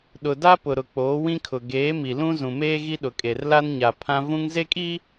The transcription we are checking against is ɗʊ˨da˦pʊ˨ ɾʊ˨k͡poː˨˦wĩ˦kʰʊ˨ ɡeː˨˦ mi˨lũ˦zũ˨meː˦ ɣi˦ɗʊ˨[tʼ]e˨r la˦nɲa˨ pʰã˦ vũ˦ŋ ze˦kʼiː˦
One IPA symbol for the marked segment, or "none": kʼ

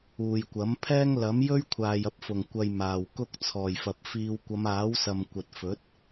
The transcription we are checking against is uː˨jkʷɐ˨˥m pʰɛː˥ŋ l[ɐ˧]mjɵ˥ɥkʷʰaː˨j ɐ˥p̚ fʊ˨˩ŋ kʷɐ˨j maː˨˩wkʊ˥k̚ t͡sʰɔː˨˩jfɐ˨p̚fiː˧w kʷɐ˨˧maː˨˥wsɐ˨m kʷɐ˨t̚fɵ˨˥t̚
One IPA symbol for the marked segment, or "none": ɐ˨˥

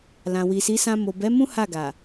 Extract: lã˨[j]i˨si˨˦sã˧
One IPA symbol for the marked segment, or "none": w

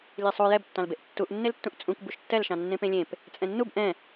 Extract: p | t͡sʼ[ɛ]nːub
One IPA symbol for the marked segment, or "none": ɛ̃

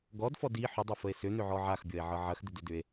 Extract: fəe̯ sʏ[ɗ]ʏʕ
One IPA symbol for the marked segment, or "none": n̪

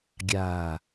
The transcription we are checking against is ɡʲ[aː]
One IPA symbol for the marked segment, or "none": aː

